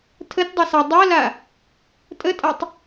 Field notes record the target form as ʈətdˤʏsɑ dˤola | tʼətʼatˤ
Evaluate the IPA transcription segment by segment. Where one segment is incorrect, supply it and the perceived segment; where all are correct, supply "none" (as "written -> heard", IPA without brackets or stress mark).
ʈ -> tʰ